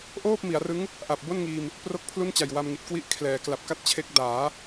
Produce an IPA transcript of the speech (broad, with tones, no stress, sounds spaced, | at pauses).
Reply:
ʔ oː˥˩ p̚ m i˩˦ a̯ r ɯ˦˥ ŋ | ʔ a˨˩ p̚ b o˥˩ n ŋ iː˧ m | p r o˥˩ k̚ pʰ l u˥˩ n t͡ɕ a˨˩ j w a˧ m ŋ i˨˩ t̚ k w i˦˥ ʔ kʰ l ɛː˩˦ k l a˨˩ p̚ k a˥˩ t̚ t͡ɕʰ e˦˥ k̚ d aː˩˦